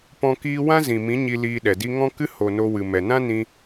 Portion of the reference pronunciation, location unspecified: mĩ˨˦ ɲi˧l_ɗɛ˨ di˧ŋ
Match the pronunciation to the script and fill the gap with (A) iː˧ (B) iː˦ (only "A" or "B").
A